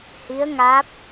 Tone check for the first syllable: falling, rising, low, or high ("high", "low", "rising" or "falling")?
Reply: rising